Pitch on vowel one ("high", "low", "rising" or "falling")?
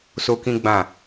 high